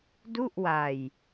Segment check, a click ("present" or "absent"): absent